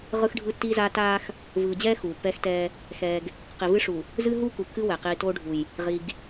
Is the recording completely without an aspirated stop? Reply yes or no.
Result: yes